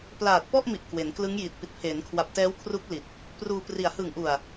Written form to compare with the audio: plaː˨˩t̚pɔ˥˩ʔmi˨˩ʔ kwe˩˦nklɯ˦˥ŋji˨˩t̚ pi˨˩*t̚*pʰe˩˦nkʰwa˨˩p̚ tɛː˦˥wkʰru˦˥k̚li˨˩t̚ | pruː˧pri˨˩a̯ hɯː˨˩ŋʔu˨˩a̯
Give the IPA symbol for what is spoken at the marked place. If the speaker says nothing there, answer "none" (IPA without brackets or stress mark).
t̚